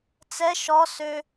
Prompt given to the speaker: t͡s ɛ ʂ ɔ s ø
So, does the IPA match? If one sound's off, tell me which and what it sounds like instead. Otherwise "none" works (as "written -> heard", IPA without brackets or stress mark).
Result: ʂ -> ʃ